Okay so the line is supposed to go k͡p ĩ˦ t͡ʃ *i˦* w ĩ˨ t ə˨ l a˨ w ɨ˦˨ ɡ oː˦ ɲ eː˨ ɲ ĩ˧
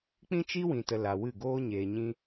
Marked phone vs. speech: correct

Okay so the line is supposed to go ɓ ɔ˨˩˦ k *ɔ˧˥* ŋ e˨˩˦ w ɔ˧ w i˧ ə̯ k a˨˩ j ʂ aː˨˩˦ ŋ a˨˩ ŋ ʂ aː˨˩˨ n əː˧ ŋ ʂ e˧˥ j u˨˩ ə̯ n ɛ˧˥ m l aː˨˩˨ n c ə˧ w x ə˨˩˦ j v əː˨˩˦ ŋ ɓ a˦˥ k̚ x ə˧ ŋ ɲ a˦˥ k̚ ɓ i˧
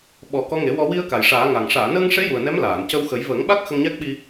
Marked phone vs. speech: correct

